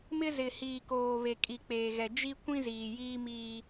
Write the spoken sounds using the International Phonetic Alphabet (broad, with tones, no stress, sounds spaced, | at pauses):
m ɪ˦ z ɪ˨ h iː˨ k oː˨ β e˨ kʼ i˨ k͡p eː˨ ɣ ɛ˨ d͡ʒ i˦ kʷ ĩ˦ z iː˨ j iː˦ m iː˦